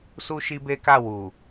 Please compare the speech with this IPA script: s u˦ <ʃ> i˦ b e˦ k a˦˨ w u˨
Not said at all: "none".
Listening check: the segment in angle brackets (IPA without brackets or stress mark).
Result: ʃ